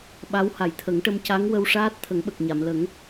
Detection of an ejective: absent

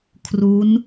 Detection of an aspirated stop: present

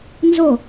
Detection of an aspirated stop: absent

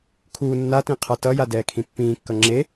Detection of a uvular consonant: present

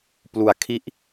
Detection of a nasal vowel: absent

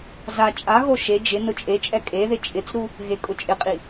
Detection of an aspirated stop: absent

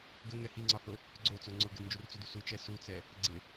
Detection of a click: present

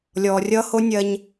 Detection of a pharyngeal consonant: absent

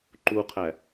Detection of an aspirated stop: present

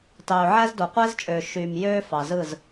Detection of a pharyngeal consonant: present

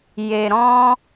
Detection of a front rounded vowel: absent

